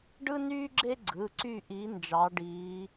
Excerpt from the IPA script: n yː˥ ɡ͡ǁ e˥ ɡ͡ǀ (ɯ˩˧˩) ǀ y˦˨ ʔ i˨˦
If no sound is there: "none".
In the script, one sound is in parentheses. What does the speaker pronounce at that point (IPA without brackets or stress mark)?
ɯ˩˧˩